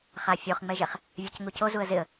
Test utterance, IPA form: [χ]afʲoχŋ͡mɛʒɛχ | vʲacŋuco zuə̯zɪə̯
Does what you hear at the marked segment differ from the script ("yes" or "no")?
no